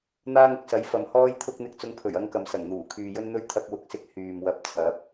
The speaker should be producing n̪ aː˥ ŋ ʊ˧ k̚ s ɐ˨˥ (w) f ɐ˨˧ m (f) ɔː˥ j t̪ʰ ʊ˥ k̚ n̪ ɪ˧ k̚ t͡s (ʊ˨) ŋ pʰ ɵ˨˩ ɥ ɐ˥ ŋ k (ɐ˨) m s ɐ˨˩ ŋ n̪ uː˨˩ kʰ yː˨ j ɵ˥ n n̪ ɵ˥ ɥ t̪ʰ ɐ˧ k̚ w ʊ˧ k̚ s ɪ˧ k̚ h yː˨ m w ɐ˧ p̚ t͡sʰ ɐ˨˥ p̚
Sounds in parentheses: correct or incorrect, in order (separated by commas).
incorrect, incorrect, incorrect, correct